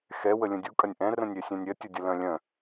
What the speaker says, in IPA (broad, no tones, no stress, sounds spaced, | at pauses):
x ɛ w ə lʲ ə̃ dʲ u kʼ ɐ nʲ ʔ ɛ̃ r ə̃ nʲ ɾʲ œ sʲ œ̃ nʲ ɾʲ ɐ tʲ ə dʲ ə l œ̃ lʲ œ̃